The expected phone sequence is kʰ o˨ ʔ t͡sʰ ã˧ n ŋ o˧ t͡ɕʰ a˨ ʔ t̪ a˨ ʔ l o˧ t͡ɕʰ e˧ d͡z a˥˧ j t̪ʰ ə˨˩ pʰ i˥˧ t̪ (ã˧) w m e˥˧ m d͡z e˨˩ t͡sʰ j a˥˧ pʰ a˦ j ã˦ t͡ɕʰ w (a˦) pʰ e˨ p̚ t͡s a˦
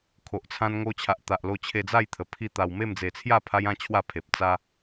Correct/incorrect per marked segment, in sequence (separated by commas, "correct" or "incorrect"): incorrect, incorrect